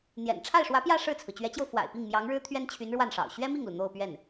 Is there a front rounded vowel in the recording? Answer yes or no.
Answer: yes